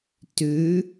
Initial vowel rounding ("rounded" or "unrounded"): rounded